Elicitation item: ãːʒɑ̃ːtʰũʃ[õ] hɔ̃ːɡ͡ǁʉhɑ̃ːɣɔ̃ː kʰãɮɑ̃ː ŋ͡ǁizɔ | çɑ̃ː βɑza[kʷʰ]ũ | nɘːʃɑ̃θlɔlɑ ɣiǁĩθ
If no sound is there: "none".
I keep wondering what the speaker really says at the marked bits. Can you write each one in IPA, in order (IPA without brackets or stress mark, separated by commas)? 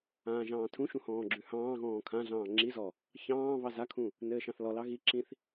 ũ, kʰ